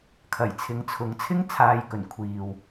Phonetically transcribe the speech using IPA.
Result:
kʰ ɐ˨˩ j t͡sʰ ɪ˨˥ ŋ t͡sʰ ʊ˨˥ ŋ t͡sʰ ɪ˥ ŋ t͡sʰ aː˨ j k ɵ˨˩ n kʷʰ iː˨ w

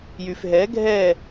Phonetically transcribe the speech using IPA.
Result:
j y f ɦ ɛ ɡʱ ɛː

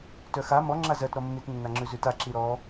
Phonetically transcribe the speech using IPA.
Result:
t œ x a m ɔ ŋ͡ǁ a z ɜ t ɾ ɔ mː i t nː a ŋ͡ǁ ʉ z ʉ t a ǁ i ɾ ɔ

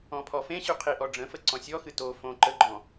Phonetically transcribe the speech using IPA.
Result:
ɔ̃ pʰ ɔ f ẽ ɕ ʉ qʰ i ʔ ɔ ɖ͡ʐ ə̃ f ə ǀ ɔ̃ sʲ ɔ x ɨ t o f õ ǃ ə ɡ͡ǃ ɔ̃

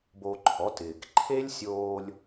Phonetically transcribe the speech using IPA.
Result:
b o˧ ǃʰ ɔ˨˦ t ɪː˨ k ǃʰ e˦ lʲ sʲ oː˧ lʲ

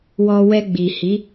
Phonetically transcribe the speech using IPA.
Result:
w ɔ˧ w ɛ˧ ɡ͡b i˨ h i˨˦

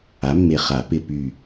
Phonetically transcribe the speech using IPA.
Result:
a˩˥ mː e˨ χ a˨˩˦ p ɪ˦˨ p y˦˨

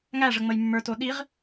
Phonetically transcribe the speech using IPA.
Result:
ŋ æ ʐ ə ŋ͡m ə j mː ə˞ t o ɗ i ʁ

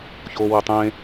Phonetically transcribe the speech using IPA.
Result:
ç oː w ɛ tˤ ẽ

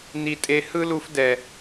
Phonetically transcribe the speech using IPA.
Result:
n i˦ tʼ e˦ h ɯ˦ l u˦ f d ɛ˦

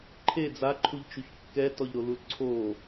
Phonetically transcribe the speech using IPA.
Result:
ǃʰ e d͡z a ǃʰ u ʎ t͡ʃ u ç kː ɛ t ɔ ʎ ɾ o l u l ǀʰ o

